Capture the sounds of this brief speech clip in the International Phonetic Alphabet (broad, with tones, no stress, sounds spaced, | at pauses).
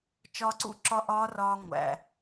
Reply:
t͡ʃ ɒː˧ ǀ ṵ˥˨ ǁ ɒ˦˥ ʔ ɒː˦˥ r ɒː˧ ŋʷ æ̰˩